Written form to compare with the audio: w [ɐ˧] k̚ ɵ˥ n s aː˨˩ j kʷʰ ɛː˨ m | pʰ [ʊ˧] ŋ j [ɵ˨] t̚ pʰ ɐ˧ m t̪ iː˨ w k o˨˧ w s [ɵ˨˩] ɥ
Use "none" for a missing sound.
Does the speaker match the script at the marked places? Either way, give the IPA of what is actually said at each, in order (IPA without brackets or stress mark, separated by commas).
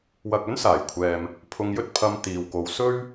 ɐ˧, ʊ˧, ɵ˥, ɵ˥